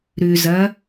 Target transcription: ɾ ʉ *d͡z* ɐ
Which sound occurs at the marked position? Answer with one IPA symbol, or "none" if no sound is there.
z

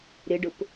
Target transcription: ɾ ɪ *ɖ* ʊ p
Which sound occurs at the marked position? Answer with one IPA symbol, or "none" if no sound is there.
ɖ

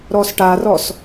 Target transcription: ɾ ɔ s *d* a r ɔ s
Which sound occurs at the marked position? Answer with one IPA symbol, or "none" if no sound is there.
ʈ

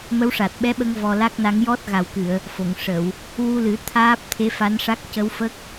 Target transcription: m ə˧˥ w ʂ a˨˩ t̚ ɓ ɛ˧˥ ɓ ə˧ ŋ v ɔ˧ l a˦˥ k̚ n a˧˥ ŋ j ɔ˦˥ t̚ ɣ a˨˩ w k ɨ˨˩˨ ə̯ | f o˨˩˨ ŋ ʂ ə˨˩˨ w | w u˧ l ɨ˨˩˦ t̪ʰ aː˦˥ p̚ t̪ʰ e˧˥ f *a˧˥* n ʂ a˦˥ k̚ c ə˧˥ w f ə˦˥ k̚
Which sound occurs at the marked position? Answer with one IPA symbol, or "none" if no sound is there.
a˧˥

